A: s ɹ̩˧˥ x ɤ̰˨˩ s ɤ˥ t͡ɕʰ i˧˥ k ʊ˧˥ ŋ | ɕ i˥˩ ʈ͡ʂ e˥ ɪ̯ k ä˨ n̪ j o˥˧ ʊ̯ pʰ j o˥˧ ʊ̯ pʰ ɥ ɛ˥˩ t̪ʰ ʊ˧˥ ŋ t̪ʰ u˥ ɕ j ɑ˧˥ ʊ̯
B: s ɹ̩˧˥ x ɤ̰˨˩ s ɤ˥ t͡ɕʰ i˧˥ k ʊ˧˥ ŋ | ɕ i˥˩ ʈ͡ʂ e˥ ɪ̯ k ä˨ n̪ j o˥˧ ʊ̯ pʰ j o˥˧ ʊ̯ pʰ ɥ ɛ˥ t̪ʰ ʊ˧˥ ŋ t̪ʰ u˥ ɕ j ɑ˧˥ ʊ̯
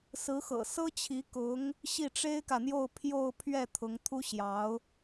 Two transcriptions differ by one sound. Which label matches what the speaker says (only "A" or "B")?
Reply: A